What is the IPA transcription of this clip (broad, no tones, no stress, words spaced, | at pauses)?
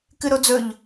kɨɾod͡zɵʎ